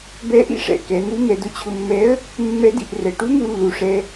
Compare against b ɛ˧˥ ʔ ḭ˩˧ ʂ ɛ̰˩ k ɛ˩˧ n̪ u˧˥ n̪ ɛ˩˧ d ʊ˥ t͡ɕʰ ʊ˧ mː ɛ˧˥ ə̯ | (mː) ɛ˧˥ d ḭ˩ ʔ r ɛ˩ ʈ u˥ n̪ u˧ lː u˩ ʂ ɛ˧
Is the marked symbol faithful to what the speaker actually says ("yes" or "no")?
yes